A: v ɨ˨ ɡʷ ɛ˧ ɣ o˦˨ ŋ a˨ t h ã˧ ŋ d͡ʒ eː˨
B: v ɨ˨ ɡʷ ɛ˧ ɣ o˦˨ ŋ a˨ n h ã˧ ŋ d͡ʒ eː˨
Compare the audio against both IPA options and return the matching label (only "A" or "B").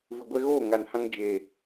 B